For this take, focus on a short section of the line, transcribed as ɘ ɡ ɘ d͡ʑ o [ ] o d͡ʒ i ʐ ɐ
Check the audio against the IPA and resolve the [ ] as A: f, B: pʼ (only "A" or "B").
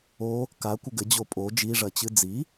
B